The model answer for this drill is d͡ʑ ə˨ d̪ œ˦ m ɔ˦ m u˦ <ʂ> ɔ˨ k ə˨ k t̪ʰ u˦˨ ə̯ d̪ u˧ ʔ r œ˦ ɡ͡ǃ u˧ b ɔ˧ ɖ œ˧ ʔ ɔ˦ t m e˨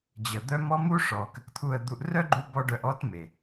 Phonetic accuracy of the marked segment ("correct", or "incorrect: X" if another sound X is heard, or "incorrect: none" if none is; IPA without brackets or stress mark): correct